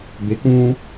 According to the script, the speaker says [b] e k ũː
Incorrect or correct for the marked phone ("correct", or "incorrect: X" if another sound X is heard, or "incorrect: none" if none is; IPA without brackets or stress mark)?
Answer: correct